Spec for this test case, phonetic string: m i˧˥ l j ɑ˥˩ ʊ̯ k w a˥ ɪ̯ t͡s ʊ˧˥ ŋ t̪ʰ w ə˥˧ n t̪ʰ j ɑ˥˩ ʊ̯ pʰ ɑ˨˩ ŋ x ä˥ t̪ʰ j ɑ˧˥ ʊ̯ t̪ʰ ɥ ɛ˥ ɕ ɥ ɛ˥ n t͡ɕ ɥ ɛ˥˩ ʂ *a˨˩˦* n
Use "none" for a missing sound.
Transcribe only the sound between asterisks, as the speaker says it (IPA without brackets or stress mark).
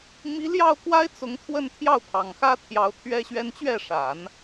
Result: a˨˩˦